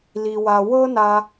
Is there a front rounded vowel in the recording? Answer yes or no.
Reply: no